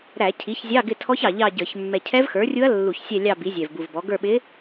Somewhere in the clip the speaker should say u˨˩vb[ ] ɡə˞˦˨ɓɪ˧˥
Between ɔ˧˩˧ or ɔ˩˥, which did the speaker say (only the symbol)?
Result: ɔ˩˥